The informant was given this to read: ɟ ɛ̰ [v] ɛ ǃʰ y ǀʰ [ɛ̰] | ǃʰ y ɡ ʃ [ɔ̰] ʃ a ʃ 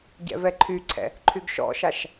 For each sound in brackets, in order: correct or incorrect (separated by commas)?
correct, correct, correct